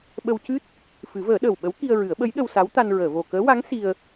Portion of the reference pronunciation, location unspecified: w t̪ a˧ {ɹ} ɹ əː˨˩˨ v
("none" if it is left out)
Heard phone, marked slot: n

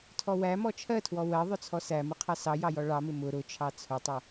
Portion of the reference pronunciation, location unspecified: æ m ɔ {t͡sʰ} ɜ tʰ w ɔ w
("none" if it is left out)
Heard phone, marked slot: t͡ʃʰ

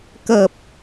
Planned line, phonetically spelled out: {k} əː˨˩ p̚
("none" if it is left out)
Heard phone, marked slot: k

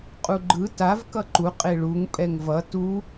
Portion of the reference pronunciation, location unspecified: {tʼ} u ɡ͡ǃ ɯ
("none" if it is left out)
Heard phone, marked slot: qʼ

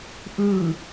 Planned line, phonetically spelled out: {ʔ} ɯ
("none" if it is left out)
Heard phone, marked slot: ʔ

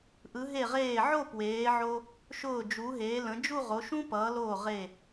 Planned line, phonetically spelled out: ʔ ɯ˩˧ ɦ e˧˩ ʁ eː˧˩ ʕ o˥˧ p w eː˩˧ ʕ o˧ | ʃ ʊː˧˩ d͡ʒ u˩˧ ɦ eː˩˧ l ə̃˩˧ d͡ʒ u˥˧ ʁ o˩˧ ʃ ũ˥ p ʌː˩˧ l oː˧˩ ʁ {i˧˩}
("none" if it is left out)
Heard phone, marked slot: e˧˩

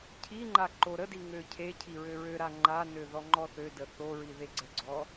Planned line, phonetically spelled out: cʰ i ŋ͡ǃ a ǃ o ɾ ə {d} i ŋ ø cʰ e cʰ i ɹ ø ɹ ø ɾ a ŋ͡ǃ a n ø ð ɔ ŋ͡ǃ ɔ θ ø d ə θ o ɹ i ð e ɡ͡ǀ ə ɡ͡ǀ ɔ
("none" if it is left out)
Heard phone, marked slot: d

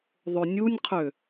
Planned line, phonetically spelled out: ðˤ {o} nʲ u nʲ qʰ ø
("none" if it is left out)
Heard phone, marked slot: o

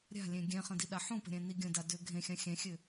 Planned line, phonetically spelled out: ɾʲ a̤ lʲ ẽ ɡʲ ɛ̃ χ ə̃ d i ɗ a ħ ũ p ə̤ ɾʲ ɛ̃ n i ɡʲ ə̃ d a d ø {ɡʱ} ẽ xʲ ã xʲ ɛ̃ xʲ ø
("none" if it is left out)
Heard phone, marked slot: ɡʱ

